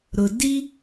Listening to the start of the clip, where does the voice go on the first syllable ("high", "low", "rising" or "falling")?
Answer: low